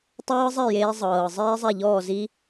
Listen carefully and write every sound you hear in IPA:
tˤ ɤː˦˥ zˤ ɛ˥˩ j eː˨˦ zˤ ɤː˩ zˤ iː˦˥ zˤ ɛ˥˩ ʎ ɔː˥˩ z i˦˥

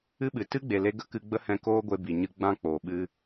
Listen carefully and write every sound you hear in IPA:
ɨ˦ ɓ ɨ˨ t ɨ˦ ɡ͡b e˨ l e˧ ɡ ə˦ k ɨ˦ ɡ͡b ə˦ h ɛ̃˧ k oː˦ ɡʷ e˧ b i˨ ɲ ɨ˧ ɡ͡b ã˦ k͡p oː˨ ɓ ɨ˦

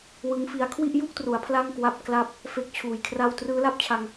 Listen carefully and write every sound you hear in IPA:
w ɯ˦˥ ŋ f i˦˥ a̯ kʰ w i˥˩ ʔ j u˥˩ k̚ t r u˩˦ a̯ pʰ l a˥˩ ŋ k w a˦˥ p̚ k l a˥˩ p̚ | f e˦˥ k̚ t͡ɕʰ uː˨˩ j kʰ r a˥˩ w t r ɯː˦˥ l a˥˩ p̚ t͡ɕʰ a˧ ŋ

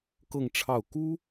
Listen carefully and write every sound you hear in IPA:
k ɤ˥˧ ŋ ʈ͡ʂʰ ɑ˥˩ ʊ̯ k u˥

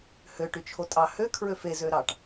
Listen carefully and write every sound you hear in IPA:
h ø ʈ y t͡ʃʰ o tʼ ɑ h ø kʰ ɹ ø f e z ø ɾ ɑ ʈ

